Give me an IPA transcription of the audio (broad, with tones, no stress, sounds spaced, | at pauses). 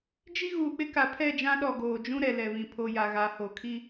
d͡ʒ i˦ ɣ uː˨ k͡p ɪ˦ k a˨ pʰ ɛ˦˨ d͡ʒ ã˦ ɗ ɔ˨ ɡ oː˨ d͡ʒ ũ˦ ɾ ɛ˨ l ɛ˨ β ĩ˨ pʰ o˨ j a˨ ɣ a˨˦ h o˨ kʰ i˦